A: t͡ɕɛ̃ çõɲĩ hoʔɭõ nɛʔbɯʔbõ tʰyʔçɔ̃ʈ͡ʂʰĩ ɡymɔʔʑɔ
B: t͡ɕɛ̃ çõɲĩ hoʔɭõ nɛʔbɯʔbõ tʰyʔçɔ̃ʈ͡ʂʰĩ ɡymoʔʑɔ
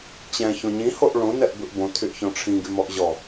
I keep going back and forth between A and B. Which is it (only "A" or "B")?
A